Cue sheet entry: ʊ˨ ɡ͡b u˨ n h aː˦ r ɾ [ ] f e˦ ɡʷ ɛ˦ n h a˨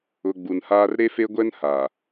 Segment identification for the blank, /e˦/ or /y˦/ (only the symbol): e˦